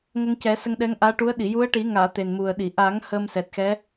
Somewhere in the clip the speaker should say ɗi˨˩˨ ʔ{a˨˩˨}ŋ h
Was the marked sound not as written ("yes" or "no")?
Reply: yes